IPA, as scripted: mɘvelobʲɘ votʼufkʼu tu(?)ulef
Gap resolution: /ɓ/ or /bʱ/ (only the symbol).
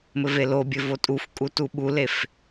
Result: ɓ